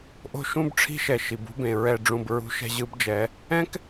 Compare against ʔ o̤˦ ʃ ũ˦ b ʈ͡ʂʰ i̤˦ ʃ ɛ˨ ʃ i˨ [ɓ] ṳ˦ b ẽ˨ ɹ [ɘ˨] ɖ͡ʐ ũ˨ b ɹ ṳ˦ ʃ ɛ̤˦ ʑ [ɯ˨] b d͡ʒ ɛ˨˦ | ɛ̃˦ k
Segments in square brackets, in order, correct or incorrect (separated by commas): incorrect, incorrect, incorrect